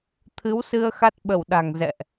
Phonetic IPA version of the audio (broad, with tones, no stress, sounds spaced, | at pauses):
t̪ʰ ɨ˨˦ w s ɨ˧ ə̯ x a˦˥ t̚ ɓ ə˧˩ w ɗ a̤˨˩ ŋ z ɛ̰˧˨ ʔ